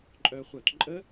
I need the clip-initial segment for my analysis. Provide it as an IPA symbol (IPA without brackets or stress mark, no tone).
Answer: ǃʼ